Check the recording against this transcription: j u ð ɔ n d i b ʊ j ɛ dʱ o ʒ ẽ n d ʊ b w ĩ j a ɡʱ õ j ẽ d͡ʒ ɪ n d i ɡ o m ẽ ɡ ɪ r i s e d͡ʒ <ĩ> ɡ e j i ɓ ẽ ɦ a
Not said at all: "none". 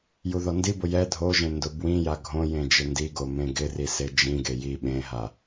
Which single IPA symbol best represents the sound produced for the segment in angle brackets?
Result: ĩ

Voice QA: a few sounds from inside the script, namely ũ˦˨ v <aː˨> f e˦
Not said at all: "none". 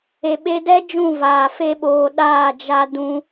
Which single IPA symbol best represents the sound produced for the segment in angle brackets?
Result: aː˨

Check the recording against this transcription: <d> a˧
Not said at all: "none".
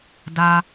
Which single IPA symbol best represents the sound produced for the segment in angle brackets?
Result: d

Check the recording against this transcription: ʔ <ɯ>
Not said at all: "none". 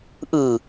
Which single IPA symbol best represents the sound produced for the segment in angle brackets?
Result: ɯ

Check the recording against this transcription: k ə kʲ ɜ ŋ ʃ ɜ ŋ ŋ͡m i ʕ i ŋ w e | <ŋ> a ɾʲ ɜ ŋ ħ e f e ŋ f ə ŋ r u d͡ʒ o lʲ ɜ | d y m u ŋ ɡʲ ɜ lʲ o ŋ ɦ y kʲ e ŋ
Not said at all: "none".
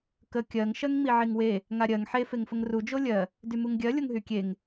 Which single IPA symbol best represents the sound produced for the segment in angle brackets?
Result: ŋ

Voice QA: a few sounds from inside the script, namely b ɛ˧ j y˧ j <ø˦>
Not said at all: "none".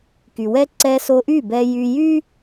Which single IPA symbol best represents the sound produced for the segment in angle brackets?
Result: y˦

